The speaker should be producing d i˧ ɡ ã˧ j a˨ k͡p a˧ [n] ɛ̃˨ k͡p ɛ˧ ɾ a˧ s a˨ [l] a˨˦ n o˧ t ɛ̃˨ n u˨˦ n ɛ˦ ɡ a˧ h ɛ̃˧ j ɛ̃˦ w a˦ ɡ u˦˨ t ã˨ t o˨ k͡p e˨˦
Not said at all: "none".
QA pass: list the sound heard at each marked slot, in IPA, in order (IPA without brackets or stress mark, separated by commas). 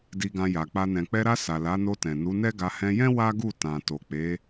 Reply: n, l